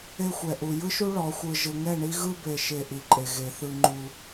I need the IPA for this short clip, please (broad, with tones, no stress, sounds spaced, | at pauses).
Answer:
e˦ xʷ ɛ˨ ʔ u˨ j ɯ˦ ʃ u˦ ɭ ɔ˨˦ xʷ ɯ˨ ʒ ɯ˨ ŋ ɛ˦˨ ɳ i˦ ɣ ɯ˦ b e˨ ʃ e˨ ʔ i˨ ǃʼ e˨ ɣ e˨ θ ɯ˦ ŋ͡ǃ u˦